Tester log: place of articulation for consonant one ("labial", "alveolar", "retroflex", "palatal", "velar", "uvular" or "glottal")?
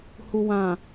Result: glottal